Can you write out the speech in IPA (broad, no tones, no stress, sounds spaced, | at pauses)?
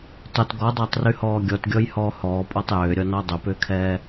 tˤ ʏ t ɡ ɔ dˤ əː tˤ r y h ɔː ɡʲ ɔ t ɡʲ ɔ j h ɔː h ɔː pʼ ɔ tˤ j ʏː ɾʲ ɔ n ɔ dˤ ʏ p ʏː kʰ ɛː